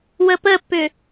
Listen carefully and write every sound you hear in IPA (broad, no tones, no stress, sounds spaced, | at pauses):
w ə p ə pː ʏ